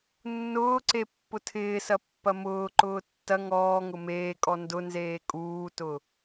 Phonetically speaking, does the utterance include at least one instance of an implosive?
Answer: no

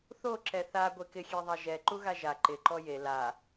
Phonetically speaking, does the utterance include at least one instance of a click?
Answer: yes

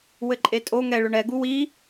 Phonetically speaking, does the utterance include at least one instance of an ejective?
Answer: yes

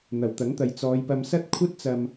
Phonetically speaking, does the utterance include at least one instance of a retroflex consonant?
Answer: no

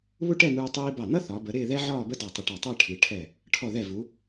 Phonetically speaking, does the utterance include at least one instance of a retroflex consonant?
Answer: yes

